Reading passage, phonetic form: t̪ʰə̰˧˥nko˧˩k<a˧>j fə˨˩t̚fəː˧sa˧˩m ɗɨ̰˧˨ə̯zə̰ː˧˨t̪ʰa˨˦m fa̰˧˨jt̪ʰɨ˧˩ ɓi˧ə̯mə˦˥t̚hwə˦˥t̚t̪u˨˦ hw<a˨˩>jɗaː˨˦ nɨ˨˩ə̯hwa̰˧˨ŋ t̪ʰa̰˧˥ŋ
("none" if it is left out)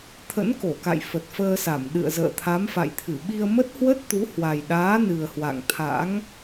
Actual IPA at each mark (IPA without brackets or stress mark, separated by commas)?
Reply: a̰˧˨, a˨˩